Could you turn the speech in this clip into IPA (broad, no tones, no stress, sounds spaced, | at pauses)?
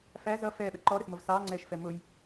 f æ z ʌ f ɛː ɓ ɛ ǃ ɔ ɾ ə s m ʌ v s ɑː ŋ͡ǀ ɛː ʃ f ɛ m ʊ j